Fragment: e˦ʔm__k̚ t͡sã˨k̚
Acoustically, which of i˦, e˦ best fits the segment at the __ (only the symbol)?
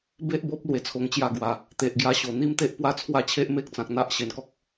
e˦